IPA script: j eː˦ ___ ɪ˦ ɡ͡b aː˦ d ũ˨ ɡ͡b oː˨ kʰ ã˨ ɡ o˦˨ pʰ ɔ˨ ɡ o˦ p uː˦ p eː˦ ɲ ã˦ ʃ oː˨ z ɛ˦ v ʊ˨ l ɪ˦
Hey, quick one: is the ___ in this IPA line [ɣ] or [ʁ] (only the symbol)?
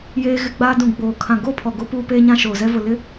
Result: ɣ